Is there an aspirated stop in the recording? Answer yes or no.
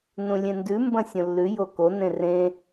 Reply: no